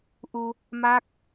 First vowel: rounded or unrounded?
rounded